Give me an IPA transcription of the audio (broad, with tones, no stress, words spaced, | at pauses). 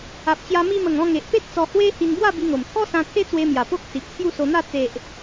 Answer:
a˨p̚t͡ɕja˧ mi˧mə˨˩ŋ ɔ̃˧ŋe˨ʔpe˦t̚ t͡sɔ˧hwe˦hi˧n bwa˥˧bi˧ŋo˨˩m t̪ʰɔ˦sã˧ t̪ʰe˦t͡swe˧mja˨˩ po˦k̚si˨p̚t͡sʰju˥˧ so˧n̪a˥˧ t͡se˨ʔ